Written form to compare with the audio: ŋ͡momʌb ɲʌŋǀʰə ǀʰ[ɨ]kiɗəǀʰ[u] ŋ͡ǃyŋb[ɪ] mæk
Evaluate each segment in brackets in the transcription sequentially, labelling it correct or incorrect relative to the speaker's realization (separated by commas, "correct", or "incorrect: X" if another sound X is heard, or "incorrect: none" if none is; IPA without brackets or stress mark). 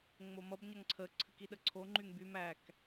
correct, incorrect: o, incorrect: y